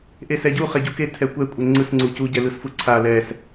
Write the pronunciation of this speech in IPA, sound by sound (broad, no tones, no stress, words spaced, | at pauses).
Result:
ʔesɛɟu χɛɟuke tʰɛkʷɛ kʷʼeŋ͡ǀɯs ŋ͡ǀucu ɟɛlɯsfuǀʰa lɛs